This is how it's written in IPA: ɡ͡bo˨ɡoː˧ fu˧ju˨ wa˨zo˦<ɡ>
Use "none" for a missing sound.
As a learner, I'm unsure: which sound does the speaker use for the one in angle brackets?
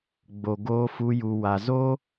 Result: none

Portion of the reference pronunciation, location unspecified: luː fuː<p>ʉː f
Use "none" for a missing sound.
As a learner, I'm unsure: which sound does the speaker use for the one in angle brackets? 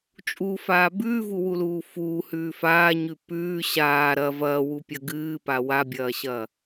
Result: h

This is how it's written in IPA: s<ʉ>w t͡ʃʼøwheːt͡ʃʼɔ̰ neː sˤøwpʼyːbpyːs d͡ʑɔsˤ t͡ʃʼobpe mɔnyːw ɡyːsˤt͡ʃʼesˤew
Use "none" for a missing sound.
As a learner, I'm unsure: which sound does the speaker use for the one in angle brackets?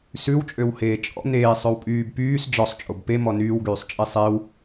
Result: ʉ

